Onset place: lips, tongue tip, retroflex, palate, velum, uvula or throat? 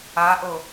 throat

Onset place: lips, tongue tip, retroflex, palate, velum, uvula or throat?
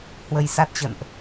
throat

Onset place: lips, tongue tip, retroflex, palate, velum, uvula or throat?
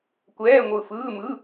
velum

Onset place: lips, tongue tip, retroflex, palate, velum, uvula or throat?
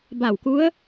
lips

